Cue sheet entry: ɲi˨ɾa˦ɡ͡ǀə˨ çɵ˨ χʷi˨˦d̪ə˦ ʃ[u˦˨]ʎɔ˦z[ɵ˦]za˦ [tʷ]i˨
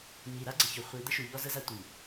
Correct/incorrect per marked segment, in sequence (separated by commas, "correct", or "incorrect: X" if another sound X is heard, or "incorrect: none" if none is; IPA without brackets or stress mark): incorrect: u˨, incorrect: ə˦, correct